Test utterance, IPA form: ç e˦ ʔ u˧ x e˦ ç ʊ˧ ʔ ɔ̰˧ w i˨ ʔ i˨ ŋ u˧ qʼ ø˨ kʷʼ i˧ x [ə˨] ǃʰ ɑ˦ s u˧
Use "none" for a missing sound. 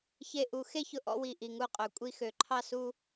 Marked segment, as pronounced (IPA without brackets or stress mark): ø˨